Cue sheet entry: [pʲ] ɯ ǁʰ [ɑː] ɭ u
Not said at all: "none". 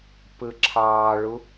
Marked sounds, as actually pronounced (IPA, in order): p, ɑː

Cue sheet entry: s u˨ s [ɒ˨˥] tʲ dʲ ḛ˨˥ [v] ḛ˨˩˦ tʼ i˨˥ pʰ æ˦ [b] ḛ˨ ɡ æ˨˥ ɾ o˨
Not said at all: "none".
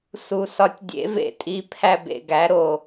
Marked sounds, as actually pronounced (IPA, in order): ɒ˨˥, v, b

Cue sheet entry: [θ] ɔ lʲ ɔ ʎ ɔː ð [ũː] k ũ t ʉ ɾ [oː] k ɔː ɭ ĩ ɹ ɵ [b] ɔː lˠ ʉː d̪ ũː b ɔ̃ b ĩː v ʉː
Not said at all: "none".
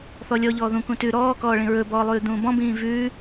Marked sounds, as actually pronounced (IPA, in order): θ, ũ, ɔː, b

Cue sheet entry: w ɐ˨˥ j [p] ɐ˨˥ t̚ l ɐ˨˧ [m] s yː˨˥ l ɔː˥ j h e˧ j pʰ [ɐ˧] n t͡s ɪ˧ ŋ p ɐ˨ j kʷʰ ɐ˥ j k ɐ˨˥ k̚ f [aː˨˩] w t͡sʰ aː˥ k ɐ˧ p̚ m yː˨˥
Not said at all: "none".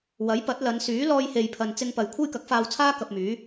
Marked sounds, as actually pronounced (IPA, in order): p, n, ɐ˧, aː˧

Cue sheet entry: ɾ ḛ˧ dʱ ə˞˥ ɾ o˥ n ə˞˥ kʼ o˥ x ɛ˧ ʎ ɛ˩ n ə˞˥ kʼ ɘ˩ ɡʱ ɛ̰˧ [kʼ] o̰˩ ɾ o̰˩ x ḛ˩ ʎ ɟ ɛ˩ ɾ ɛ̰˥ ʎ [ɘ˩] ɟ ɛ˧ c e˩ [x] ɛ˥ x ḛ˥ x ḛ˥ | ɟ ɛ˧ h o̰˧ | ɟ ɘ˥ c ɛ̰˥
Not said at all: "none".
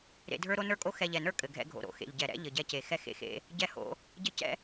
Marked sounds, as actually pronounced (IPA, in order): ɡʱ, ɘ˩, x

